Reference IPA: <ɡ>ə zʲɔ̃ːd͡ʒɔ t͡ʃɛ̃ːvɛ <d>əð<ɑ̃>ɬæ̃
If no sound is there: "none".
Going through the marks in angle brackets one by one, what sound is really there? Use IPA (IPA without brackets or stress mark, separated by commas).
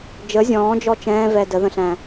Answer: d͡ʒ, d, ə̃